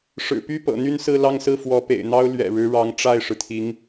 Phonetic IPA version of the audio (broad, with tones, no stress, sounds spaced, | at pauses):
ʂ ɻ̩˨˩ p y˥˩ p ɤ̰˨˩ n̪ y˥˧ n s ɹ̩˥˧ l ɑ˥˧ ŋ s ɹ̩˥˩ f w ɔ˧˥ p ḛ˨˩ ɪ̯ n̪ ɑ˥ ʊ̯ l ɥ ɛ̰˨˩ ɻ ɻ̩˧˥ ɻ ɑ˧˥ ŋ ʈ͡ʂ a˥˩ ɪ̯ ʂ ɻ̩˩ t̪ʰ i˧˥ ŋ